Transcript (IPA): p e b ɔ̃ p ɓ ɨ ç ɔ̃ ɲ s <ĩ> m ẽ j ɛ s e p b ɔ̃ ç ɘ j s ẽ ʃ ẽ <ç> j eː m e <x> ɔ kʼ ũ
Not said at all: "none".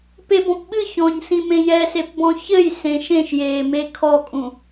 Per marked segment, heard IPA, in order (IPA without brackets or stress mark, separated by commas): ĩ, ʃ, kʰ